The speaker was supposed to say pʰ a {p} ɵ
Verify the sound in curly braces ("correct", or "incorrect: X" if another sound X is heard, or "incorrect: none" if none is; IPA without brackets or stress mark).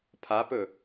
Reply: correct